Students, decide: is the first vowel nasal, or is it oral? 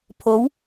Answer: oral